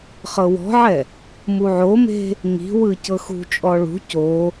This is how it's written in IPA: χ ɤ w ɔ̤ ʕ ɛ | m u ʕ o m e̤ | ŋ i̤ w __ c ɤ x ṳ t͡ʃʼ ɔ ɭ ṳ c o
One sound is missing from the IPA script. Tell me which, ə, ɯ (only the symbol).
ɯ